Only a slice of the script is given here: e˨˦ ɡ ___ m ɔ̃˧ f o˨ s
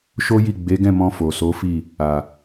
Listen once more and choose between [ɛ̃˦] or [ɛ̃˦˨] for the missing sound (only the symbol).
ɛ̃˦˨